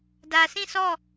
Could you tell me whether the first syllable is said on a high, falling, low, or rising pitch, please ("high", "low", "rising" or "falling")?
low